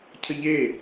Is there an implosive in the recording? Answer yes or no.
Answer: no